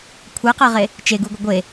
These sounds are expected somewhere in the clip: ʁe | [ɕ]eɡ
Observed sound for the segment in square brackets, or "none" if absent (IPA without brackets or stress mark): t͡ʃ